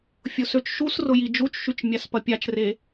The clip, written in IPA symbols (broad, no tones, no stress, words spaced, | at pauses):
fʲʊsøt͡ʃʃusrʊ jid͡ʒut͡ʃʃyt͡ʃ mʲaspɐpʲat͡ʃre